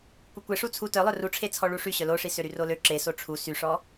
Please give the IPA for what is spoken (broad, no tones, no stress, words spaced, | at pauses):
kʷekʷe ʂut͡sʰu tœlˠœ ruʈ͡ʂʰe t͡sʰɔɭuʂy ɕœloʂi søɾyrolø ǁe soʈ͡ʂʰu syʂɔ